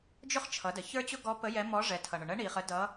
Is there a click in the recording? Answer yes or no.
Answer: no